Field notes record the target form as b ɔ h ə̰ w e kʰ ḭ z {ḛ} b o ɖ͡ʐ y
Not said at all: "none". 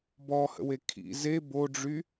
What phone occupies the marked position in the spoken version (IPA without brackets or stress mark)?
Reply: e